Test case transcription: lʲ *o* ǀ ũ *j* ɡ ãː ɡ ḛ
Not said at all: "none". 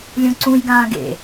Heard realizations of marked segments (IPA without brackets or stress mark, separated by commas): õ, j